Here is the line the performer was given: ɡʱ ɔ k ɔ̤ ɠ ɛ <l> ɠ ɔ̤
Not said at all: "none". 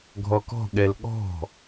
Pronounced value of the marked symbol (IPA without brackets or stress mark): l